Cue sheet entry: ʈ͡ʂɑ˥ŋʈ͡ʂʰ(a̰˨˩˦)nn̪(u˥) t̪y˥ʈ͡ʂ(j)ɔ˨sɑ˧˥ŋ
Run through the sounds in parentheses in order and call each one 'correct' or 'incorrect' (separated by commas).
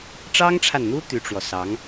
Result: incorrect, correct, incorrect